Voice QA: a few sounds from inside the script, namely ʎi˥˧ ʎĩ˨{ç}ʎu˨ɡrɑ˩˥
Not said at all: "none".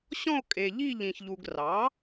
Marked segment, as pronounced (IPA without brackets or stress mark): ç